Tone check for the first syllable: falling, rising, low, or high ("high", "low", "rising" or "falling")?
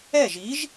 falling